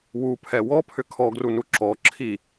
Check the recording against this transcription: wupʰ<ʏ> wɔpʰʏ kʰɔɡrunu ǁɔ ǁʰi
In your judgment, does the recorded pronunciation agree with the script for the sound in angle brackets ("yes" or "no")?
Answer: no